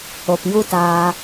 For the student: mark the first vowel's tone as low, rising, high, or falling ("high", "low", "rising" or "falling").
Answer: low